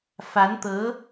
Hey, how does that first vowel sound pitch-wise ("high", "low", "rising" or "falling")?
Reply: rising